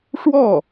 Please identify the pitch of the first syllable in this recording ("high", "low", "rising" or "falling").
falling